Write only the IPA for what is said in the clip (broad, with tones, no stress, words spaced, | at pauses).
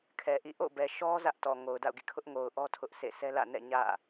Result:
kʰɛ˨ʔḭ˦˨ ʔo̰˦˨bɛ˨ʃɔ˦ zä˦ʔtɔ˨ ŋo˨ʊ̯da̰˦˨ʊ̯ɡḭ˦˨ kʰʊ˦ʔŋo˨ʊ̯ʔɔ˦ tʰʊ˦ʔsḛ˦˨ sʰɛ˦lä̰˦˨nɛ̰˦˨ ɲä̰˦˨